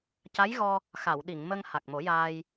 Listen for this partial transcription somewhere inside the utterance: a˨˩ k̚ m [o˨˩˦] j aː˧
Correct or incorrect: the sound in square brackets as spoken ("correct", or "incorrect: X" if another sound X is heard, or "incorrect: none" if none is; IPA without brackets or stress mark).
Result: correct